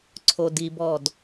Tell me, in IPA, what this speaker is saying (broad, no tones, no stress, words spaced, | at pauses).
ǀʰodibɔd